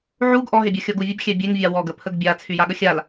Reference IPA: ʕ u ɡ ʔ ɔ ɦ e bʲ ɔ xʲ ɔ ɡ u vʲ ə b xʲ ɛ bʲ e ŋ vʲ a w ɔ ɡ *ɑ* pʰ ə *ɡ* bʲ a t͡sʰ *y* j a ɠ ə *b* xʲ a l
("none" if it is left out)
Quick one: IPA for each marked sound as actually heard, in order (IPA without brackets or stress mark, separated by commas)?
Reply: ə, ɡ, y, none